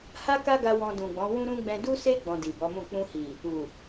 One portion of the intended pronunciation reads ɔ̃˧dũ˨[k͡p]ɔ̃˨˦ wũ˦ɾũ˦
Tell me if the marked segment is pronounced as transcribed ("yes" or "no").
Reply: no